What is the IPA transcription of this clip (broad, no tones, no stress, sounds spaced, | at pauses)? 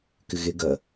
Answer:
k ɪ ɣ e ɡ ɐ